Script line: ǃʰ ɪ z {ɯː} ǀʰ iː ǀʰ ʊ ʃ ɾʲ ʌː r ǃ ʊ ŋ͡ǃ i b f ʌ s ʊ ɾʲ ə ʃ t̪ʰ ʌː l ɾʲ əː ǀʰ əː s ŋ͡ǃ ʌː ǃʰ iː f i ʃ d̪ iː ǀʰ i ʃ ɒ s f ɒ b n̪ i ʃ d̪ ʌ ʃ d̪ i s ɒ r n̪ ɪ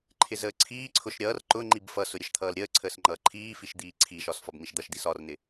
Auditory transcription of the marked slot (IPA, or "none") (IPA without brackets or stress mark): əː